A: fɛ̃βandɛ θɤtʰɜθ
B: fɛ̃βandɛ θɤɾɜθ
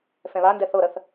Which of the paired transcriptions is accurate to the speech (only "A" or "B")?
B